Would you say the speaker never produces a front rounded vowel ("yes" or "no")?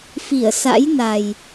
yes